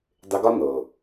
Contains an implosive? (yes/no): no